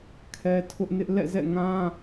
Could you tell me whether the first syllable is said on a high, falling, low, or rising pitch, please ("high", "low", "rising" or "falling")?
high